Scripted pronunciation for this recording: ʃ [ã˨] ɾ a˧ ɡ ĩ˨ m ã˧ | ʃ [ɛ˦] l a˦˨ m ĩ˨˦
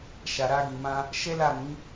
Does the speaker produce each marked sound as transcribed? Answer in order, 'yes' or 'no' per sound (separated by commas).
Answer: no, yes